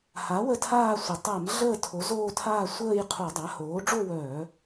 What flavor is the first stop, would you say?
aspirated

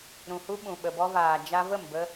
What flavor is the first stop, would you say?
implosive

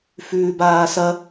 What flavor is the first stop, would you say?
plain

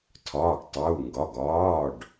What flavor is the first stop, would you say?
aspirated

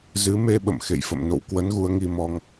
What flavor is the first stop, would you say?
implosive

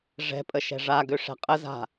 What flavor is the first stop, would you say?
ejective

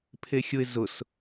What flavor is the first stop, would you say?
aspirated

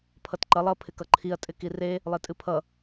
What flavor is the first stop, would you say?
aspirated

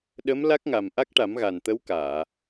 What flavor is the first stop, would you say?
implosive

